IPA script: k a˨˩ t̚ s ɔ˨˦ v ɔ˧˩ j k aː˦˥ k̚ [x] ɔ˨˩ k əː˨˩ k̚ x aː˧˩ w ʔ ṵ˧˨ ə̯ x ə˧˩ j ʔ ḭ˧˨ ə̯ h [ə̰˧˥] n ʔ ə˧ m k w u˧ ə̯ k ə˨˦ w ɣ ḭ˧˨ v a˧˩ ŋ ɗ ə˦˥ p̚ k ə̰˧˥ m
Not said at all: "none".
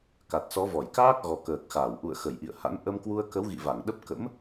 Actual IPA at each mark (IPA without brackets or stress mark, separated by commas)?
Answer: ɣ, a̰˧˥